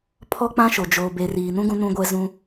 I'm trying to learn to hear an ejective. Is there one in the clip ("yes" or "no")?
no